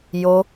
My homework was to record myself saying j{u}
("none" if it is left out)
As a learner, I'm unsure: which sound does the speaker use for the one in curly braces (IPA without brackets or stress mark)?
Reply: o